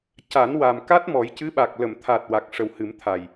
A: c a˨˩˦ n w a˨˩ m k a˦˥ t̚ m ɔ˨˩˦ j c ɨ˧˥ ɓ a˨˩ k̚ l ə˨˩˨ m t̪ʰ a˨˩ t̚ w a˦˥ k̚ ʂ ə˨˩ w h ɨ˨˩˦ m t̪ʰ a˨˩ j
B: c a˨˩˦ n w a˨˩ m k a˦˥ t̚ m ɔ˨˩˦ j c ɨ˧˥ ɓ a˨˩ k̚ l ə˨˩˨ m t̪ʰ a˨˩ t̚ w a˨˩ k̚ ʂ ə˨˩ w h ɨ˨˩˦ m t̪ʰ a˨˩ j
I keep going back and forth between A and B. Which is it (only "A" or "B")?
B